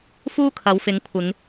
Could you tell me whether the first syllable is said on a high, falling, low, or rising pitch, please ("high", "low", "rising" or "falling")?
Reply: high